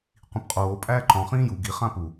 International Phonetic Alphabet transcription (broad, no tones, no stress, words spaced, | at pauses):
qʷĩpqʼoː pʼæːǃɔ̃ χĩːju ɡi χãpu